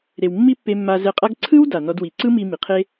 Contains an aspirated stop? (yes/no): yes